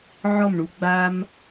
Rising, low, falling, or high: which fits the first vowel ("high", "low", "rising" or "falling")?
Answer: falling